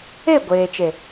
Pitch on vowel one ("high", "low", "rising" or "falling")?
falling